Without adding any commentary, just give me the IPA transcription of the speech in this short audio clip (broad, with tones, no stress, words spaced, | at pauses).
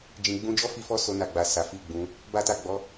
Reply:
d͡ʒĩ˨ɡ͡bũ˧d͡ʒɔ˦ fi˦fɔ˦so˧ na˨ɡ͡ba˨ sa˨˦fi˦˨ɡ͡bũ˨˦ | ba˦ta˦˨ ɡ͡bɔ˨˦